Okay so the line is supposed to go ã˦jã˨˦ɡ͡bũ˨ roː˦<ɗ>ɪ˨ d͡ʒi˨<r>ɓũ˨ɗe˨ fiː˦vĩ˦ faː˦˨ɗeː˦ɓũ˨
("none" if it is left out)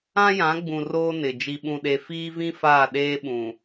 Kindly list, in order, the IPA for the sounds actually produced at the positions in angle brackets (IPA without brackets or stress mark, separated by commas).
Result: n, none